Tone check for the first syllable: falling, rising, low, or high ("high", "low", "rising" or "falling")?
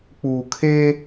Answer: low